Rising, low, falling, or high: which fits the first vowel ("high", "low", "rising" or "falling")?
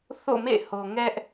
falling